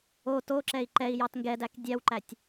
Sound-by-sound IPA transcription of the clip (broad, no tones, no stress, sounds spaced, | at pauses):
o t o ǁ ɛ i̯ ǃ ɛ i̯ j ɑ t ŋ ɡ ɛ d æ k dʲ æ w ǃ æ tʲ